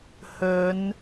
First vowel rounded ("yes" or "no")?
yes